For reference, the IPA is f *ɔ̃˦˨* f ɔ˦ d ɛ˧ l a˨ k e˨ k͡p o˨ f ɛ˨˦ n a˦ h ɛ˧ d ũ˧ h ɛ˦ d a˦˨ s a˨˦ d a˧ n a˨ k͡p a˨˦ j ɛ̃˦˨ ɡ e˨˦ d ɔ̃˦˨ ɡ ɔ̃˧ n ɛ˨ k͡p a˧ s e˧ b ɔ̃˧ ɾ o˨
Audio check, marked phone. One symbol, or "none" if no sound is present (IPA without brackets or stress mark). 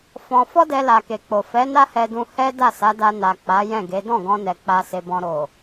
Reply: ɔ̃˧